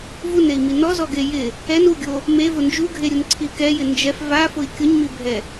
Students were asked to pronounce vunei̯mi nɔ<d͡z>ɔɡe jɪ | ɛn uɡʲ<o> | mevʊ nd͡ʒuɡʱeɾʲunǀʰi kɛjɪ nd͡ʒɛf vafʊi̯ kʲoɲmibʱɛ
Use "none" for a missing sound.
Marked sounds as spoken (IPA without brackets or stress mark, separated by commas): z, o